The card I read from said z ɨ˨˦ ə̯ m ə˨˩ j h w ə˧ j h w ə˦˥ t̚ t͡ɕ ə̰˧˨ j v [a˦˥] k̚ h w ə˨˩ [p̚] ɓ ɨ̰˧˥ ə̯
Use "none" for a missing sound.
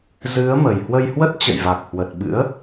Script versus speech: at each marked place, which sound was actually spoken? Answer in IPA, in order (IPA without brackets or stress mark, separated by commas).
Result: a˨˩, t̚